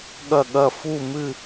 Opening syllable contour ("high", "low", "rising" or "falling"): falling